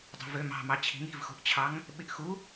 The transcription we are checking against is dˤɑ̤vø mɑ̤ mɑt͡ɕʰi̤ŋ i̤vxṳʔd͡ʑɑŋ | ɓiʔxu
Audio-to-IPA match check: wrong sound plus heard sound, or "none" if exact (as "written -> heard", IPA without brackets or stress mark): d͡ʑ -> t͡ɕʰ